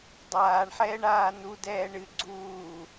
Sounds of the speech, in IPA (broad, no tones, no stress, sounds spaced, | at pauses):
dˤ aː ɳ ħ ɛː ɳ aː n u d ɛː ɳ ɨ ɡ͡ǀ uː